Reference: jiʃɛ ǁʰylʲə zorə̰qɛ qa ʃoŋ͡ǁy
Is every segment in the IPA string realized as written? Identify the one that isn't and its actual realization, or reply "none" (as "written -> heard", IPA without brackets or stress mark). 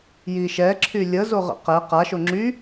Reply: r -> ʁ